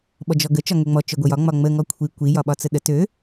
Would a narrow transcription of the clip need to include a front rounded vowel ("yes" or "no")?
yes